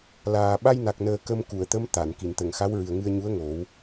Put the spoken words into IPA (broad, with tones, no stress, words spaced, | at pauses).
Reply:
laː˨˩ ɓa˧jna˨˩k̚nəː˨˩ kə˧mku˨˩˨ə̯t̪ə˧˥m t̪a˨˩˨n ki˨˩˨nt̪ə˨˩˨ŋxa˧˥w ɹɨ˨˩ə̯ŋɨ˧ə̯ɲu˧˥ə̯ ŋo˨˩˦w